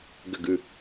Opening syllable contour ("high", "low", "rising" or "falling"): falling